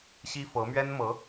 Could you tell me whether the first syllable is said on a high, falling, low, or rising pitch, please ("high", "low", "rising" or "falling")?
high